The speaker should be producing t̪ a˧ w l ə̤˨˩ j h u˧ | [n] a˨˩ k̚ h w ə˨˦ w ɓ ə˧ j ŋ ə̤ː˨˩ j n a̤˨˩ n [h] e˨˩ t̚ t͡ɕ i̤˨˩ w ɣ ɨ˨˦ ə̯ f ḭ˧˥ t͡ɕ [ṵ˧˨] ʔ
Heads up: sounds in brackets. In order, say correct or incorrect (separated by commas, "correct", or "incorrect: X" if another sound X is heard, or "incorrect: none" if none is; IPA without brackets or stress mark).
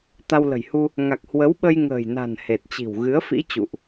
incorrect: ŋ, correct, correct